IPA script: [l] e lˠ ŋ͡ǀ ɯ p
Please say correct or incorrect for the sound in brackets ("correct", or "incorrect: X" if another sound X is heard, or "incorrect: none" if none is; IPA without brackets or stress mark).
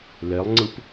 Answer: correct